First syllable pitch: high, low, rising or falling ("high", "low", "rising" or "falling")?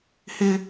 high